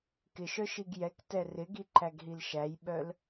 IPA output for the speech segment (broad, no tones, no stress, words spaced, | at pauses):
kɪʃœ ʃiɡjɛktɛ rɪɡi ǃæɡɦilʃæjɓœl